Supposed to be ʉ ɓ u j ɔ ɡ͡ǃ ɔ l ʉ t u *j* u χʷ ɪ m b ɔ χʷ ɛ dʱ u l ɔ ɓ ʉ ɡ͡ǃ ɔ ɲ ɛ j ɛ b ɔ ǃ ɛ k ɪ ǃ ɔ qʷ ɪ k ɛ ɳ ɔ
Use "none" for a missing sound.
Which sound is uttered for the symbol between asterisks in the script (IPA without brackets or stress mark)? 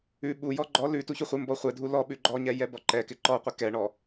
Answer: ç